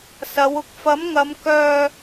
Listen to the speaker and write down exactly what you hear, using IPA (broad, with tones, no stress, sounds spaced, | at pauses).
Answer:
s ɐ˨˧ w ʊ˨ k̚ f ɐ˨˥ m ŋ ɐ˨˧ m k œː˧